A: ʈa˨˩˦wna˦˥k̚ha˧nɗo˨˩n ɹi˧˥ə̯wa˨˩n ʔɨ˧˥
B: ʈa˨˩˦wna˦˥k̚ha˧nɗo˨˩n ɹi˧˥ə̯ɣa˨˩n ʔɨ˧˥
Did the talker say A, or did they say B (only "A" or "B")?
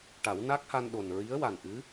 A